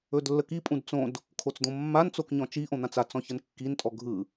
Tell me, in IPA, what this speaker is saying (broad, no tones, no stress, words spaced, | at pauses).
ɵdlːəkipʼũd t͡sõd | kʰot͡sd̪õmːant͡sok ɲɔ̃t͡ʃiʔõ n̪ãt͡sat͡sɔ̃ çənkːintʼɔ ɡʱɯ